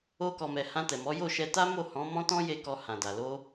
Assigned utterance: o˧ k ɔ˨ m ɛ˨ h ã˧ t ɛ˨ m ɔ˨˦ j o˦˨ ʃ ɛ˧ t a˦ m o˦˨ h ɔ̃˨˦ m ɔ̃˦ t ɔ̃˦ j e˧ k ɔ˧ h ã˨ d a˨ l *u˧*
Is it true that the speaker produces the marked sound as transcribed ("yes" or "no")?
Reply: no